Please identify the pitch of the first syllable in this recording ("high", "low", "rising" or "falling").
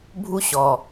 high